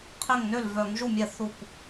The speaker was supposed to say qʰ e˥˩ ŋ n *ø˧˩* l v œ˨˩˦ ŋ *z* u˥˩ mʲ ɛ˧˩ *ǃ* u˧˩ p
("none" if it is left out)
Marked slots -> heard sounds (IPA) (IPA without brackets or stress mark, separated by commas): ø˥˩, ʒ, θ